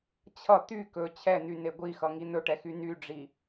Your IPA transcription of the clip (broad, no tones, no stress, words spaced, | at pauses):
t͡ɕʰʌ t̪y kɵ t͡ɕʰɛn̪yne ɡʷixʌŋi n̪ɵʈɛxy nyɖ͡ʐi